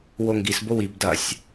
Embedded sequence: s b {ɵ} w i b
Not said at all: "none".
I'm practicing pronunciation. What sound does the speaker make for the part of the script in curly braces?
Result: o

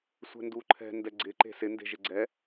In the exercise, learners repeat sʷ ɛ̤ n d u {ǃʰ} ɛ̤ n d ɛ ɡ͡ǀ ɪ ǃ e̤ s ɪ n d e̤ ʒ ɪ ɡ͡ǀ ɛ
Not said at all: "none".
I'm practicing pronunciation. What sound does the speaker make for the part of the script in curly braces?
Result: ǃʰ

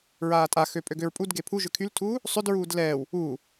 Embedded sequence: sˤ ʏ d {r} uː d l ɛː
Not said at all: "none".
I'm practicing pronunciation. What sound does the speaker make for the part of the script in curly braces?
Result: ɹ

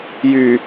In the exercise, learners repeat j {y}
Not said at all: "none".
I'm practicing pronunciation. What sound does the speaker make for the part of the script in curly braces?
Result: y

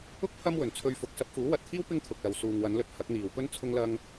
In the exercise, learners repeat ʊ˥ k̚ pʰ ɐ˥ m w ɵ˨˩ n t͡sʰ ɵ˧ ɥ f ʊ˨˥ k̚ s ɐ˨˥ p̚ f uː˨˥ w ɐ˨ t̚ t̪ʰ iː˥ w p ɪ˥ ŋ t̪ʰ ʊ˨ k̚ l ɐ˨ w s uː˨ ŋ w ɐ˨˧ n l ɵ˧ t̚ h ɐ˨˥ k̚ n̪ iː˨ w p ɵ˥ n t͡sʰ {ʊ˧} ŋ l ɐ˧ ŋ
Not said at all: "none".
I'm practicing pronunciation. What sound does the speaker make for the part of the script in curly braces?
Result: ʊ˧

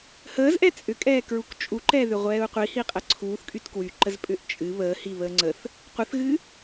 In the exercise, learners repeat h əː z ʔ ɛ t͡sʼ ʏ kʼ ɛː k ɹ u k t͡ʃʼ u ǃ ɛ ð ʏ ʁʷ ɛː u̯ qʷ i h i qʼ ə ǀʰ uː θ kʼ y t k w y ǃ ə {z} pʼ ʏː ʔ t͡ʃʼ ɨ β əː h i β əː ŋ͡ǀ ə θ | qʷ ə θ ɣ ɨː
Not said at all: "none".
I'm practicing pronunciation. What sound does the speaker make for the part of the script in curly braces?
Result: z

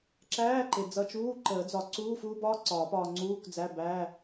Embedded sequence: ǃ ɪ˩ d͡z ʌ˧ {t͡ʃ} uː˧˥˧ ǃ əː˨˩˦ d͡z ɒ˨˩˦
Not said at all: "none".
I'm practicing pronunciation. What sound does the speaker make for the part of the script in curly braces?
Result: t͡ʃ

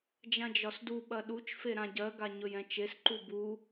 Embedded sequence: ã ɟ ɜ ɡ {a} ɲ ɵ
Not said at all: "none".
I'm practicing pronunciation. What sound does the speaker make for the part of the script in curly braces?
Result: a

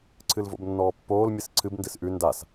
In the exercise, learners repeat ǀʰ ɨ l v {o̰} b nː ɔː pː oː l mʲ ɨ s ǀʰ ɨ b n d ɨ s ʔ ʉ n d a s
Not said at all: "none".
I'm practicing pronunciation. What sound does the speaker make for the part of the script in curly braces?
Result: o̰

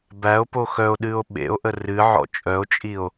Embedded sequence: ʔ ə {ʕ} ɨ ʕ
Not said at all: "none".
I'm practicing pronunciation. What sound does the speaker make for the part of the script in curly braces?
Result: r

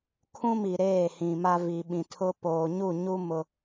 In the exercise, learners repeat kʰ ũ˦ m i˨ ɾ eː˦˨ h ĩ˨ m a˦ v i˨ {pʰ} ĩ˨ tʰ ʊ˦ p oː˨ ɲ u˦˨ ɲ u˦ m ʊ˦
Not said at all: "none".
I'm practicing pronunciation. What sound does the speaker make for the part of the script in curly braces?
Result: ɓ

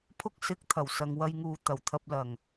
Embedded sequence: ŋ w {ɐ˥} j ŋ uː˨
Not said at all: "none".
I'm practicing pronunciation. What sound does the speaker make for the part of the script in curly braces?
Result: ɐ˧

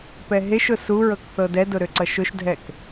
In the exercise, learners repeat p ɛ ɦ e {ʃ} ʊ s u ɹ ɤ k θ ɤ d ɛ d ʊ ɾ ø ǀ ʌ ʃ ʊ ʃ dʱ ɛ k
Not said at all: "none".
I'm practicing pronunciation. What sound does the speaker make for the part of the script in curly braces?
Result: ʃ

